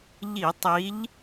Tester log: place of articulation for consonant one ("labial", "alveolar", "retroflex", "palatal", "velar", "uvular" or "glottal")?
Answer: palatal